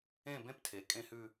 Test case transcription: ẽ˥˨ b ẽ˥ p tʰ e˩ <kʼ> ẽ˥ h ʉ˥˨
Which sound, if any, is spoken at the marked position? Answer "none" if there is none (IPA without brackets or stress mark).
kʼ